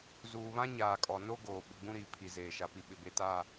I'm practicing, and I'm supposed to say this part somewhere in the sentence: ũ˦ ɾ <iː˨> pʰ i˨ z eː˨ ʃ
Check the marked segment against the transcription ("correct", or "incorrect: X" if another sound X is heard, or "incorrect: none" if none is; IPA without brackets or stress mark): correct